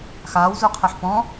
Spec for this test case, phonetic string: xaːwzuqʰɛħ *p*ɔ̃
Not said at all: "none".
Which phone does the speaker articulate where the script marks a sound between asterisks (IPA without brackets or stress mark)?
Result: p